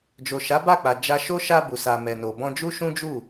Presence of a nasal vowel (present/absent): present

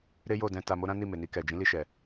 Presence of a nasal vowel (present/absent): present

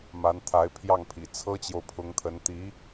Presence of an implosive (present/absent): absent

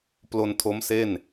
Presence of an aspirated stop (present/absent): present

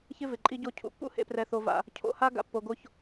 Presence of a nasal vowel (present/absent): absent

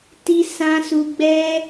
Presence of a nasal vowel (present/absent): present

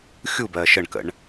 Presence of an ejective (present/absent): absent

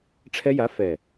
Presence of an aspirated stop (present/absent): present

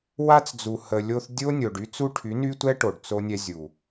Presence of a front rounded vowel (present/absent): present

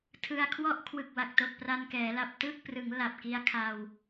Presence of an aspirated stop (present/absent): present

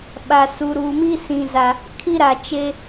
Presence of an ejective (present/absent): absent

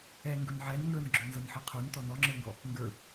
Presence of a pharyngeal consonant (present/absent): present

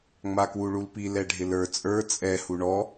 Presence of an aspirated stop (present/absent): absent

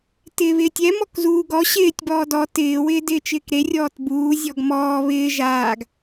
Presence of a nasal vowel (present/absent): absent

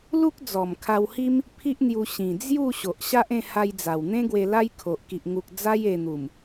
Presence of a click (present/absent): absent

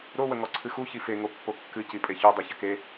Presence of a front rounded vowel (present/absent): absent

